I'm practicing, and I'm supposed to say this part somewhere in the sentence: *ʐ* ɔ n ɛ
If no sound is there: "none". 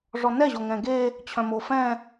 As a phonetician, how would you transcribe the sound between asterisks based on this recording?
ʐ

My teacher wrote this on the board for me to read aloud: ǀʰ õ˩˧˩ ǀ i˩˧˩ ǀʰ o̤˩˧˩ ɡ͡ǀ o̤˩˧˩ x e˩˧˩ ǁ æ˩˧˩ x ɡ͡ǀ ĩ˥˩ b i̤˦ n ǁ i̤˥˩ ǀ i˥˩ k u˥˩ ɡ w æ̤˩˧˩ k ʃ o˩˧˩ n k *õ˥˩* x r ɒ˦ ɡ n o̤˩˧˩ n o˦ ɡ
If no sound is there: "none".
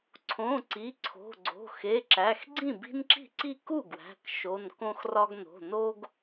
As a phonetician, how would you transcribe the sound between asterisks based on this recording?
õ˦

